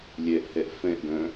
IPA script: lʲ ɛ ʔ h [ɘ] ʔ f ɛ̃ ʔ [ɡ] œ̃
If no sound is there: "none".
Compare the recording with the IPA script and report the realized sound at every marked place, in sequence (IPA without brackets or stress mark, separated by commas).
ɛ, ɡ